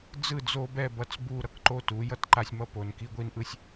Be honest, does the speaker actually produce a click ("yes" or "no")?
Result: yes